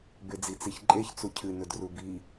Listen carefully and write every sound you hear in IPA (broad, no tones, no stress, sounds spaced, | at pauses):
b e d͡z i t͡s i ç ǃʼ e ç t͡s u cʰ ɨ n ɵ d r u b i